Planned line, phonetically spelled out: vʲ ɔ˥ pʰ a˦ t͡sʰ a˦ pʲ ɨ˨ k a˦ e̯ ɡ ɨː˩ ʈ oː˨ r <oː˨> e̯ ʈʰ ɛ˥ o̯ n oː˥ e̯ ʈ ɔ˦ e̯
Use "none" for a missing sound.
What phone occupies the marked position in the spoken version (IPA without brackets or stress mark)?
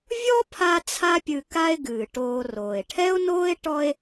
oː˩